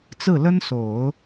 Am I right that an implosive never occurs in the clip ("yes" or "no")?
yes